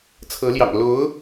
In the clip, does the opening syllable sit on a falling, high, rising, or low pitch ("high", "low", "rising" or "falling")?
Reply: rising